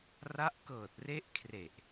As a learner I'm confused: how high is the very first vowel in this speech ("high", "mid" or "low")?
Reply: low